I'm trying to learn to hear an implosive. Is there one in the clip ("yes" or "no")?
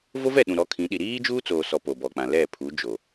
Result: yes